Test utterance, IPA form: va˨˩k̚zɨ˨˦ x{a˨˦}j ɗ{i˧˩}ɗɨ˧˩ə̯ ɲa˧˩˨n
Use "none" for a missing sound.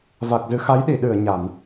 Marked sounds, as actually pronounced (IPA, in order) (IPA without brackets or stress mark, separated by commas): a˨˦, i˧˩